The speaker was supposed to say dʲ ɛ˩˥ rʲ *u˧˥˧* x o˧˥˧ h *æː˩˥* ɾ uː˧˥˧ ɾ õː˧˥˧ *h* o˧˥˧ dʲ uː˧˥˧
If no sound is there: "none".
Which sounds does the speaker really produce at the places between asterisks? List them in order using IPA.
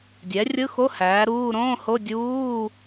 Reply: ɯ˧˥˧, æː˩˥, h

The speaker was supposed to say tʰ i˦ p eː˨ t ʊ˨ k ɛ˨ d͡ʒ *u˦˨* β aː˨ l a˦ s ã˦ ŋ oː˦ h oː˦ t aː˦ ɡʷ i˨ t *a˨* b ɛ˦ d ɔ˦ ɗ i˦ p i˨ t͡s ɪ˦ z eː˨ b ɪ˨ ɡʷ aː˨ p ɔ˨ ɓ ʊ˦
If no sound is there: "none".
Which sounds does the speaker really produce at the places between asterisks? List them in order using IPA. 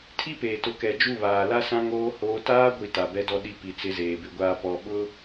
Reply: u˦˨, a˨

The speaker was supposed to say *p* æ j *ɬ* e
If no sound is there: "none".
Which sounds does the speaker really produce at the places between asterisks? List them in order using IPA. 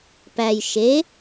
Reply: p, ʃ

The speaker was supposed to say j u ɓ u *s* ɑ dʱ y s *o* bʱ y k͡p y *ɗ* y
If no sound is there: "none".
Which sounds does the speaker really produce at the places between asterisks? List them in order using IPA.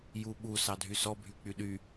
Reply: s, ɔ, ɗ

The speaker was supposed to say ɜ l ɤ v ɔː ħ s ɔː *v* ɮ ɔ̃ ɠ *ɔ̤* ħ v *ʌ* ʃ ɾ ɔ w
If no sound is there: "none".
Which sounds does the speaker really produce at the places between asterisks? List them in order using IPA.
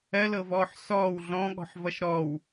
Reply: w, ɔ̤, ʌ

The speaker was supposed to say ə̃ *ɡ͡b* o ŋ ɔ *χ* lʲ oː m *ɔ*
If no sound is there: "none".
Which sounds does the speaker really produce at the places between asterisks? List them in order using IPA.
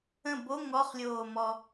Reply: b, χ, ɔ

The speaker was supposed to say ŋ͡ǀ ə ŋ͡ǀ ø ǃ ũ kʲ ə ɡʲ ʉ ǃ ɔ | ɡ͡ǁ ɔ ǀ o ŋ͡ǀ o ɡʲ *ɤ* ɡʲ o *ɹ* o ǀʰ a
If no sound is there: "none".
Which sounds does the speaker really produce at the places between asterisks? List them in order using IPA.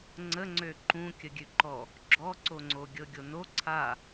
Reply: ɤ, n

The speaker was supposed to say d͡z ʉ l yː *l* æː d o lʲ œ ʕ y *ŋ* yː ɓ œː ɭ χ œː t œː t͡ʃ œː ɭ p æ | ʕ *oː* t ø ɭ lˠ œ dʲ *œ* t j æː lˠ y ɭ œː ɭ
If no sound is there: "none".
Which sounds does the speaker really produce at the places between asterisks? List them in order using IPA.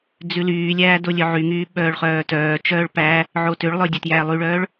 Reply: lʲ, ŋ, o, œ

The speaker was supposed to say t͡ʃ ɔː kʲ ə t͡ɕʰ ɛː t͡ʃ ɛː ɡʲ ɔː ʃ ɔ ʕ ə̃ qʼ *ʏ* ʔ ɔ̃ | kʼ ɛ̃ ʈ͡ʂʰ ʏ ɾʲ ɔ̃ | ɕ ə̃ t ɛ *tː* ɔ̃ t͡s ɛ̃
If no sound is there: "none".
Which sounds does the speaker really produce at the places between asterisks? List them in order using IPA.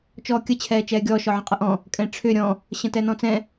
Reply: ə, n

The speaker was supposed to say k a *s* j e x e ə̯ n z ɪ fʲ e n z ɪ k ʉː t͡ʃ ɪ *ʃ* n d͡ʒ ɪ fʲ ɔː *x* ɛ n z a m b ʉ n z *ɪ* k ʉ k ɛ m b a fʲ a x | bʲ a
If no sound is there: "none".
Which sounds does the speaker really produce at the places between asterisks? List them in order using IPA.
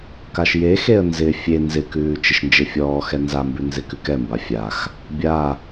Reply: ʃ, ʃ, x, ɪ

